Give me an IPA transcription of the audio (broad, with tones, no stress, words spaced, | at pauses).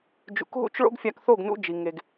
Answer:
d͡ʒṵ˨kɦṵ˦t͡ʃ ɭo̰˦ɡfʲa˧kθo˦˨ɡ nṵ˦d͡ʒi˨ ŋe˨ɡ